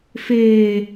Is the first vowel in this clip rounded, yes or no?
no